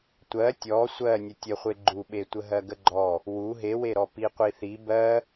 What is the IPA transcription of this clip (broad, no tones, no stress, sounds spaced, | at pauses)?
tʷ ɜ tʲ ɔ sʷ ɜ nʲ ə tʲ ə χʷ e ɡ͡ǃ u ɓ e tʷ ə ɦ ɜ ɡ ə ɡ͡ǃ ɔ | w u ɦ e w e ɾ ɔ p i qʷ i θ i b ɜ